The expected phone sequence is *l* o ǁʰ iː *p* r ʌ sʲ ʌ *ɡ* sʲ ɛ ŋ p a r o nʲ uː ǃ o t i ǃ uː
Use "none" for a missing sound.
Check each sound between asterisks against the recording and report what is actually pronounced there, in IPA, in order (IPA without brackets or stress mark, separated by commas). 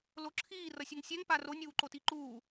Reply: l, none, ŋ